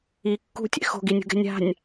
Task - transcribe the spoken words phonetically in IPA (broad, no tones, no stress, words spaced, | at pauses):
i kːṳtʲɛ̰ xo̤ɡinʲṳɡɛ̤ nʲa̤nʲ